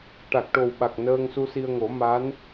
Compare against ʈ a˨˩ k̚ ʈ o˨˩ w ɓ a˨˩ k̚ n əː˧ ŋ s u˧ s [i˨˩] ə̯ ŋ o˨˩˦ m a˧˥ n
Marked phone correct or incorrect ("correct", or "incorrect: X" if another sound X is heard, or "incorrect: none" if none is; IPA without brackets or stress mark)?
incorrect: i˧